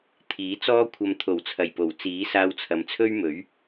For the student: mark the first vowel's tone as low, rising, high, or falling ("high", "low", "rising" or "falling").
rising